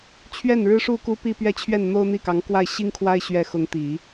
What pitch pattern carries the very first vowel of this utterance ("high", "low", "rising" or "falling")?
falling